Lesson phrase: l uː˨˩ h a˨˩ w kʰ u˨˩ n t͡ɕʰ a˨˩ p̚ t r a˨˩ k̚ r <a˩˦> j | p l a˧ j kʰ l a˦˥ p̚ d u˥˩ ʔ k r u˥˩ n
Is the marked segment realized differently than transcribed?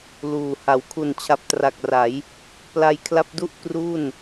no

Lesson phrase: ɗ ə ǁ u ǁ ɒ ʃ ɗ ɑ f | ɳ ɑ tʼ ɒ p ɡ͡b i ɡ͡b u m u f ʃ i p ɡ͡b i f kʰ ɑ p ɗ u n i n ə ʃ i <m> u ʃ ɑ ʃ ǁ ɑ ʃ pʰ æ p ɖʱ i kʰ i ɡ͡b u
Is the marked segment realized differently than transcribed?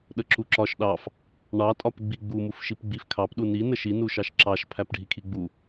yes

